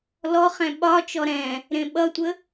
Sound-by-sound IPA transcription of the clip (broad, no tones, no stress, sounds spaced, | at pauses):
l ɔ χ ɛ̃ ɓ ɒ t͡ʃ ɔ ɾ ɛ̃ | ɾ ẽ ɓ ʌ tʷ ə